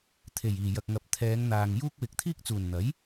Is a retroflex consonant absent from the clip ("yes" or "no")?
yes